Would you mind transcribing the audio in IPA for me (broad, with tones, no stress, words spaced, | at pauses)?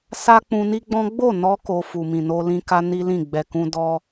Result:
sa˦k͡pũ˧ni˦ɡ͡bɔ̃˦ ɡ͡bo˦˨nɔ˧ ko˧ fu˨mĩ˨no˧lĩ˧ ka˦ni˦lĩ˦˨ ɡ͡bɛ˨kũ˧ dɔ˧